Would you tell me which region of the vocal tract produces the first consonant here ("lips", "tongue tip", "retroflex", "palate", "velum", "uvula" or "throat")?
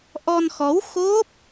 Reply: throat